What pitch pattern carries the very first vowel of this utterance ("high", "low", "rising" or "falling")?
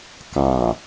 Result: low